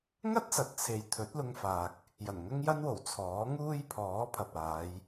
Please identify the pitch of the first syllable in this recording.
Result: high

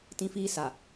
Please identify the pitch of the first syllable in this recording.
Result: high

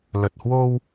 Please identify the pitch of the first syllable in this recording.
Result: low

